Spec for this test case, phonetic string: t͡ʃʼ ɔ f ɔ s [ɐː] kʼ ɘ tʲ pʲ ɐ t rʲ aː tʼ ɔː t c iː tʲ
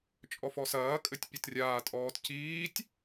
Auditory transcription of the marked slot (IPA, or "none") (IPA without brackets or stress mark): ɐː